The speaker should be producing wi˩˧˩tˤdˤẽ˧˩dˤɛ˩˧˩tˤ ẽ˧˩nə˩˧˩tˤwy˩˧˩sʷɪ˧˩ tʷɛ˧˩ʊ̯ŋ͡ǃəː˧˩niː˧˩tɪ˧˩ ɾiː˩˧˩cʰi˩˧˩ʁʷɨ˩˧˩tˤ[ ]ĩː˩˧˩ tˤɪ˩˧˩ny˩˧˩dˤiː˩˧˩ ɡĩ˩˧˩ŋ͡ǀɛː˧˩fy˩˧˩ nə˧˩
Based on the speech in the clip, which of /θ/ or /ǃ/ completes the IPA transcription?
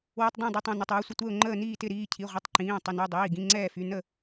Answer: ǃ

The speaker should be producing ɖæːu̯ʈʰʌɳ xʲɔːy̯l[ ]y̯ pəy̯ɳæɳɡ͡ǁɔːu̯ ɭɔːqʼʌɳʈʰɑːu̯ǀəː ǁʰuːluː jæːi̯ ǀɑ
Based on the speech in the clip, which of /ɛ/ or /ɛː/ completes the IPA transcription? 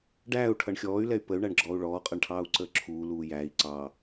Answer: ɛ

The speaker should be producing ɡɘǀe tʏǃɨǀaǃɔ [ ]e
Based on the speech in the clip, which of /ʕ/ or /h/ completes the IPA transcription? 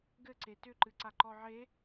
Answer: ʕ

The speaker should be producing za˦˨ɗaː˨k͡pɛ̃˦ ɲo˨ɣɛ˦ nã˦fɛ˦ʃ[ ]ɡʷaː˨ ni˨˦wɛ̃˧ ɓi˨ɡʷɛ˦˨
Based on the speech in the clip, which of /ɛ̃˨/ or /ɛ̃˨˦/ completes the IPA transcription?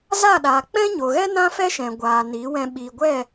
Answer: ɛ̃˨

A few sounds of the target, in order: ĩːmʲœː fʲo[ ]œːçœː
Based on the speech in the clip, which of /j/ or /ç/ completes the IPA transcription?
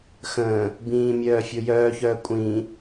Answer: j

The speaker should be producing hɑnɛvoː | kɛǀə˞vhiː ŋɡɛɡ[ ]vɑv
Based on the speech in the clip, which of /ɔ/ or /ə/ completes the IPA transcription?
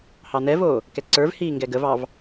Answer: ə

